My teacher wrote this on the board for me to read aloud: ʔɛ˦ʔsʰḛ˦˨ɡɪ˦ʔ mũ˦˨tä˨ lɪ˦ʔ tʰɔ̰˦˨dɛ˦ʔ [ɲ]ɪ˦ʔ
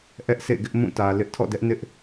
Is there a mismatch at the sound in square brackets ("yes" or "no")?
yes